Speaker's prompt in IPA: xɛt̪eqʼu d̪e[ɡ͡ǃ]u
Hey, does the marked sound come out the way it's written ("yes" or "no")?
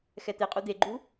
yes